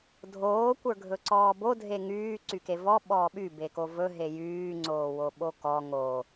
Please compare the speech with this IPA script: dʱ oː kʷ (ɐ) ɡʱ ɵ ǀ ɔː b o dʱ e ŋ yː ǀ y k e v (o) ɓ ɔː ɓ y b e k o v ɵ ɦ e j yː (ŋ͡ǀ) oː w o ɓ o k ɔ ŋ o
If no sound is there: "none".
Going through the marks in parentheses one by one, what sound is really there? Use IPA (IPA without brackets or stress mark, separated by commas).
ə˞, ɔ, ŋ͡ǀ